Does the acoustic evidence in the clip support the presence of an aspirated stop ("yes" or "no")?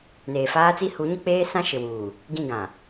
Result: no